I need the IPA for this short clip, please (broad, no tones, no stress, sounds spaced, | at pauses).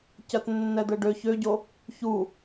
c ɜ t nː ɛ d̪ ɛ ɖ ø ç ø ɟ o | ç u